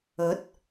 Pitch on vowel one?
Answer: rising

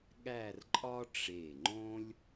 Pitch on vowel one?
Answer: falling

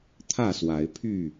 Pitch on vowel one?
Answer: falling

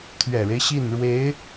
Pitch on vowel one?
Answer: low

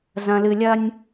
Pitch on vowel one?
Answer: low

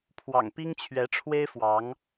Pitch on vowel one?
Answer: low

